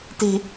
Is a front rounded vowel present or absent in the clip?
absent